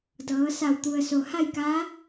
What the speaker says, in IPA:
d ɤː˩˧ s a˧˩ w t̪ u˩ ə̯ s o˩ h a˥˨ j k a˧˥

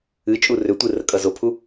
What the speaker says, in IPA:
ɨ t͡ʃʼ u r ʏ tʷ ɨ r ə kʼ ʌ z o pʰ u

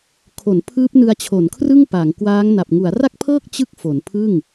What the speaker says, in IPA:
kʰ o˩˦ n pʰ ɯː˦˥ p̚ n ɯ˧ a̯ t͡ɕʰ o˩˦ n kʰ r ɯ˥˩ ŋ p a˩˦ ŋ k w aː˦˥ ŋ n a˨˩ p̚ ŋ u˩˦ a̯ r a˥˩ k̚ pʰ ɤː˥˩ k̚ t͡ɕ ɯ˥˩ k̚ f o˩˦ n pʰ ɯ˥˩ ŋ

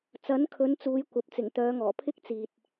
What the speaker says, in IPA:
t͡s ɐ˨˥ n kʰ ɵ˨˧ n t͡s uː˨˧ j kʷ ɐ˨ p̚ t͡s ɪ˨˩ ŋ t̪ œː˨˧ ŋ ɔː˨˩ pʰ ɪ˥ k̚ t͡s iː˨ t̚

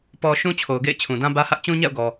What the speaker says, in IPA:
p ɔ˦ ʃ ũ˦ t͡ɕʰ o˨ ʊ̯ ɡ ḛ˦˨ ɪ̯ t͡ɕʰ ũ˨ d ã˦ b ä˦ h ä˦ ʔ t͡ɕ ũ˦ ɲ a̰˦˨ ʊ̯ ɡ ɔ˨

